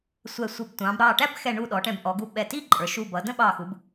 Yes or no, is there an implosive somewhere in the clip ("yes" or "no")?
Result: yes